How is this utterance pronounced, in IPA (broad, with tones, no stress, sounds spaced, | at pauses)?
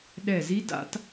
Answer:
ɗ ɛ˧˩ z i˦˥ d a̰˦˥ t